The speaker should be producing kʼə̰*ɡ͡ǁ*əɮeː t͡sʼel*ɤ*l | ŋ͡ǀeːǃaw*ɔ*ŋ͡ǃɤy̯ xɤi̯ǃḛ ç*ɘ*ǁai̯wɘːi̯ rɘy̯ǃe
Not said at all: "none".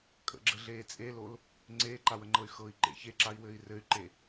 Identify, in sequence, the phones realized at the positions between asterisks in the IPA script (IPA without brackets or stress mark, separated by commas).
ɡ͡ǁ, o, ə, e